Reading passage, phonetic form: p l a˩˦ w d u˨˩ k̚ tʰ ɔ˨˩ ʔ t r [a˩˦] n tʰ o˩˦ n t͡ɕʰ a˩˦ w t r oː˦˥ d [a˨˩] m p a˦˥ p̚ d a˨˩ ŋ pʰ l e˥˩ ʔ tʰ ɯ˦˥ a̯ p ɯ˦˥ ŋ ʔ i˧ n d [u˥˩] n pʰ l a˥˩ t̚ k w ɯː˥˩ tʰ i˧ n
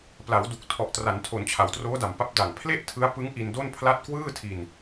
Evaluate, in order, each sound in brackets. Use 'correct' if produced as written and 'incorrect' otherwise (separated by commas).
correct, correct, incorrect